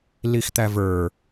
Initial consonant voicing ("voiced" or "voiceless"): voiced